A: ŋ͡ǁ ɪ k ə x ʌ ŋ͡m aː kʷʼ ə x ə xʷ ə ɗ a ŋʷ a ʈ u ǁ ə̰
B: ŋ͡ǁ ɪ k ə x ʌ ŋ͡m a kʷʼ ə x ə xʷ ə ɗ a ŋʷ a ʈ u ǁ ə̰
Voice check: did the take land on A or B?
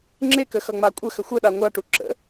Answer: B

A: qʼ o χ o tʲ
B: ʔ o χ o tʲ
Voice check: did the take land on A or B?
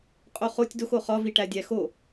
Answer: A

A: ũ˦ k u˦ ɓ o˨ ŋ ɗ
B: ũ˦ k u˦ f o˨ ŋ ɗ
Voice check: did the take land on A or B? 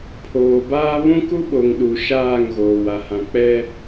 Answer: A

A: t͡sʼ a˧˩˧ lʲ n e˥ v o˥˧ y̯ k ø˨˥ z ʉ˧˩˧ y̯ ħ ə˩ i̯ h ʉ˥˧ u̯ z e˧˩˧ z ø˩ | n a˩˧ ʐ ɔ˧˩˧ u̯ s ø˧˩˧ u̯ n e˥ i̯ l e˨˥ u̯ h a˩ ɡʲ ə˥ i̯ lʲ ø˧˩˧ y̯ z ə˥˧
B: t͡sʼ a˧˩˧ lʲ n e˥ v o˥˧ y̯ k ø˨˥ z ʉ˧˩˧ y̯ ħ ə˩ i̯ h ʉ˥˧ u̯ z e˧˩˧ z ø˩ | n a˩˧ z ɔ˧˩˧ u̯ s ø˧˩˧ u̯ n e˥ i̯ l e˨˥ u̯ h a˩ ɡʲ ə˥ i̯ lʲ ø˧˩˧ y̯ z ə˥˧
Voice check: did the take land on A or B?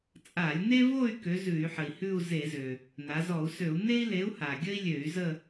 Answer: B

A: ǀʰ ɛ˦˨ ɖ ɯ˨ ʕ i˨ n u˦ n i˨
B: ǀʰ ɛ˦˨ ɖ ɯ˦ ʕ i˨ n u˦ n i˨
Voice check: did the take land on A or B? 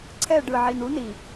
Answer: A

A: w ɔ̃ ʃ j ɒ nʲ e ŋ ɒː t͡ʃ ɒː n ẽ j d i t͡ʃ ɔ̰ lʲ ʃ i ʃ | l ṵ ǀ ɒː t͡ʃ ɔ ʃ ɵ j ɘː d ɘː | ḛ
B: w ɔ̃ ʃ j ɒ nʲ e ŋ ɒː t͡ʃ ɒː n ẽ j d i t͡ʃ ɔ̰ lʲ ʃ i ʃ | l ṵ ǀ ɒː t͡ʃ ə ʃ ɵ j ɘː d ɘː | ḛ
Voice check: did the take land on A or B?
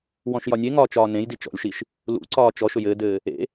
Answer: A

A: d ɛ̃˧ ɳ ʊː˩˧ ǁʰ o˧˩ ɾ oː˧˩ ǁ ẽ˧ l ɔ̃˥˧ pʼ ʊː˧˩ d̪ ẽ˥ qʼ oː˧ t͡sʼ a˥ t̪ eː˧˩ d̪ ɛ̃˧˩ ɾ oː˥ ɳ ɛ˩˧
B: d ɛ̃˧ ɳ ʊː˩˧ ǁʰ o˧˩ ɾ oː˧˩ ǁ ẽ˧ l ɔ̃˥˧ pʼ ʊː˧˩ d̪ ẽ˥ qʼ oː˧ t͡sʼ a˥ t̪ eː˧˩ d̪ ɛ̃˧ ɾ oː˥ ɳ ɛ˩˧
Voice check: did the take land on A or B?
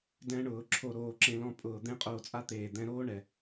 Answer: B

